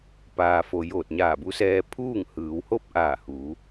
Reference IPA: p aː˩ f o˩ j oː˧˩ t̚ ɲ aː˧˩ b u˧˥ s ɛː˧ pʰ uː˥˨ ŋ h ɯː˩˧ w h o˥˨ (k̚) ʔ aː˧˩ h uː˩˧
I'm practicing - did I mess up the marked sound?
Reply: yes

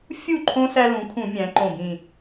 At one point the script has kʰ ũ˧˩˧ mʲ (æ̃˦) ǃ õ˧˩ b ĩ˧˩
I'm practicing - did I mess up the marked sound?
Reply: yes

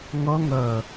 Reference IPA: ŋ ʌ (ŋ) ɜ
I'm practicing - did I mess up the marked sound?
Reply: no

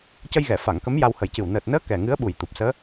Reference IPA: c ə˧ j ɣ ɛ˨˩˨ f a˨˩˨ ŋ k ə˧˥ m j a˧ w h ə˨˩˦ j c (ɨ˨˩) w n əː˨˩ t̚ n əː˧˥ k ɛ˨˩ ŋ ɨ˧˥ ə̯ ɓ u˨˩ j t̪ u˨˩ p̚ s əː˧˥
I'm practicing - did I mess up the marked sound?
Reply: no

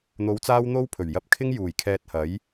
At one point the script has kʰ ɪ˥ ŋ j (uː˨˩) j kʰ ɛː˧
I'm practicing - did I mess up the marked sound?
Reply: no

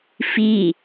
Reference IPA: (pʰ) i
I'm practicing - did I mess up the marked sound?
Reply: yes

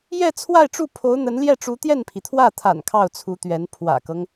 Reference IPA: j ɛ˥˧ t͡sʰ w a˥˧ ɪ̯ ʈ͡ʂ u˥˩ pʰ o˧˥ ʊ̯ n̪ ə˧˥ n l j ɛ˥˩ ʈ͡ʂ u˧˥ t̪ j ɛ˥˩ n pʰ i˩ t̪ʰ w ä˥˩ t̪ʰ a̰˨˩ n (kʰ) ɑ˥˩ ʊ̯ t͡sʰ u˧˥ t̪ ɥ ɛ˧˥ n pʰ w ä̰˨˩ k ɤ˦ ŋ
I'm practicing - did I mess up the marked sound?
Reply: no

